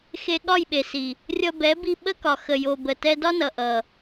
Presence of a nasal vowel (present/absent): absent